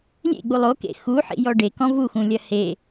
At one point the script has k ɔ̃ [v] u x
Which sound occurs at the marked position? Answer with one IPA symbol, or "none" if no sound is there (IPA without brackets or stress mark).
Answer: v